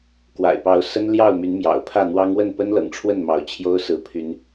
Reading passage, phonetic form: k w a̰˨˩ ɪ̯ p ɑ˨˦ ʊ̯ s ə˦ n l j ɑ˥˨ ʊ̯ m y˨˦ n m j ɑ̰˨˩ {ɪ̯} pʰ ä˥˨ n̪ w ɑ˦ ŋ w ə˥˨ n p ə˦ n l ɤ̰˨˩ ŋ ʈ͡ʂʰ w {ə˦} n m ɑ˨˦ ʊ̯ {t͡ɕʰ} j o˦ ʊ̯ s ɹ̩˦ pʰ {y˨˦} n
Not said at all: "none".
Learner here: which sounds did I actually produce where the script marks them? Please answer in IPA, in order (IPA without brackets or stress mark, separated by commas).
ʊ̯, ə˥˨, t͡ɕʰ, y˨˦